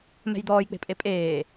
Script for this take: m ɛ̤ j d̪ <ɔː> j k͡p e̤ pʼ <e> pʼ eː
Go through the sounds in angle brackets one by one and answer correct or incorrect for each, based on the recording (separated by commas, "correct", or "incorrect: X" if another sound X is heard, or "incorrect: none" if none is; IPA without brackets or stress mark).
correct, correct